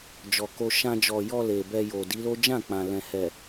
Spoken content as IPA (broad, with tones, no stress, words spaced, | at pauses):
d͡ʒɔ˨ko˧ ʃã˧d͡ʒɔ˨ jɔ˧ le˨bɛ˧jo˨ di˨˦lo˦ d͡ʒã˦˨k͡pã˨ lɛ̃˨hɛ˨